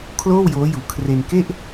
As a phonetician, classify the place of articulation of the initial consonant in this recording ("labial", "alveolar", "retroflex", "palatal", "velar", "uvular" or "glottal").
velar